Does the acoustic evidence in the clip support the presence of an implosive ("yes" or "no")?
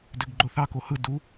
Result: no